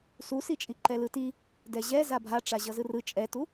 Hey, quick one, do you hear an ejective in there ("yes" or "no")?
yes